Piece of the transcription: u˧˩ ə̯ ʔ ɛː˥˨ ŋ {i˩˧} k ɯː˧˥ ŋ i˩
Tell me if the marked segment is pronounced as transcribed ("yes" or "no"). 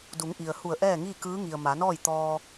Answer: no